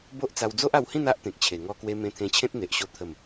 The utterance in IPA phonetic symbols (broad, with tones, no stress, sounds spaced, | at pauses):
b o˦ ʔ t͡s a˧ w d͡z o˦ ʔ a˧ w h ĩ˥˧ n a˦ ʔ t̪ ẽ˨ k̚ t͡ɕʰ e˨˩ ŋ ɔ˧ k w e˧ m ẽ˧ t̪ʰ ẽ˧ t͡ɕʰ ẽ˦ t̚ n̪ e˨ ʔ ɕ o˧ t̪ʰ ə˨˩ m